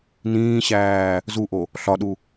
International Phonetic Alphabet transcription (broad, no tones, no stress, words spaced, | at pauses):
nĩːɕæː | zuʔo | ɬɒɗu